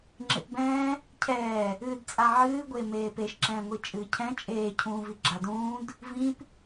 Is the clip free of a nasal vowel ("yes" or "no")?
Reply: no